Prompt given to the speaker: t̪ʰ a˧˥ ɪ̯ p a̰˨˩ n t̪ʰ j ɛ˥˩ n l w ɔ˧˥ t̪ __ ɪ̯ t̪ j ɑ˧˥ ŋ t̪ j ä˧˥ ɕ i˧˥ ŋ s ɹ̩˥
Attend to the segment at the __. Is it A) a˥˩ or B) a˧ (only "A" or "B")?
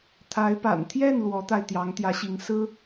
B